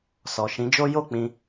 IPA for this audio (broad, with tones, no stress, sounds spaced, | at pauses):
s ɔ˨ ʃ ĩ˨˦ d͡ʒ o˦ j o˦˨ k͡p ĩ˧